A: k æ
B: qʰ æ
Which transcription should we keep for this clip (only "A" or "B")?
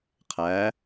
B